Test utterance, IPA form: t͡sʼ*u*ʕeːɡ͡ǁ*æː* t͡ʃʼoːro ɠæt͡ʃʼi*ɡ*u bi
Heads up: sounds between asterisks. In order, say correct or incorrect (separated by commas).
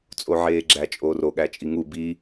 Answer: incorrect, incorrect, incorrect